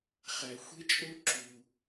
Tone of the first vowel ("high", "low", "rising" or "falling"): low